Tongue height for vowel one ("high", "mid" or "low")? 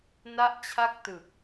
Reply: low